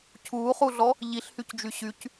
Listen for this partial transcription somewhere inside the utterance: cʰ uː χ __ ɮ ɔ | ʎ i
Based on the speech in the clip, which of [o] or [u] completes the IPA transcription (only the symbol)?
u